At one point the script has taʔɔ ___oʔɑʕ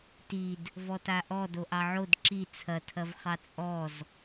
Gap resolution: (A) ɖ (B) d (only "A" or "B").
B